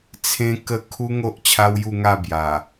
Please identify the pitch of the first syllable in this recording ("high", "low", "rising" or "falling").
high